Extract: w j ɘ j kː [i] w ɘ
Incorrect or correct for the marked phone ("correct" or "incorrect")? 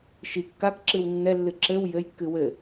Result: incorrect